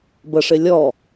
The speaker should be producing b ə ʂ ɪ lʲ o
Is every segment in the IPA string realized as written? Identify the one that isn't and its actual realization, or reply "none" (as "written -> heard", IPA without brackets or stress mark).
o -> ɔ